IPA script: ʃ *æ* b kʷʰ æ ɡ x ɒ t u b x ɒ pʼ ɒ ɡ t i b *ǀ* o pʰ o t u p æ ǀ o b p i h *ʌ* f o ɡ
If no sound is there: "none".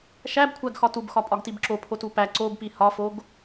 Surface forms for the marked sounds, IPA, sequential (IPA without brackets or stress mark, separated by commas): æ, ǁ, ɒ